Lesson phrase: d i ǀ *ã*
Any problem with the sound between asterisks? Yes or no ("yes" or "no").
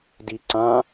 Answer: no